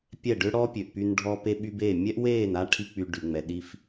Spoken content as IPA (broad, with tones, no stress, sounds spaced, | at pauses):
pʲ ɛ˦˨ ɖ ø˦ ɽ ɔ˦ pʲ ø˨ ʔ p y˧ n ɖʱ ɔ˧ p e˧ ɓ y˧ b e˦˨ mʲ ɛ˦ ʔ w eː˦˨ n a˦ ʈʰ i˦ k͡p y˧ ɖ y˨ ŋ͡m ɛ˨ ɗ i˧ f